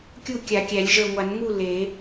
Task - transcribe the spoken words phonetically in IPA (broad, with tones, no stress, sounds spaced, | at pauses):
kʲ u˥˨ kʲ a˨˩˦ kʲ æ˨˩˦ lʲ ʒ ə˞˧˩ ŋʷ a˨˩˦ n ŋ u˥˨ l e˨˩˦